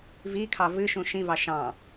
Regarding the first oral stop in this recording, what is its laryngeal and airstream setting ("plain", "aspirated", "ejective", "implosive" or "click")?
aspirated